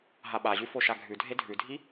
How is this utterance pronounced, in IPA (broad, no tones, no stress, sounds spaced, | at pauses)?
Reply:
ɦ a ɓ a ʑ ʉ f o ʃ a ɡʱ ʉ dʱ e dʱ ʉ dʱ i